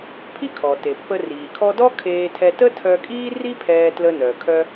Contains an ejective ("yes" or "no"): yes